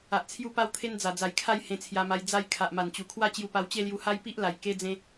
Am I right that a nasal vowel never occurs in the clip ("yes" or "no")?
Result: no